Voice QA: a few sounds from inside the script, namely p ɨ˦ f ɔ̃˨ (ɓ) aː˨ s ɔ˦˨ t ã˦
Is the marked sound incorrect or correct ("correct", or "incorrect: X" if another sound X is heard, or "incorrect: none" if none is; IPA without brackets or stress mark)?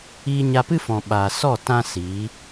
correct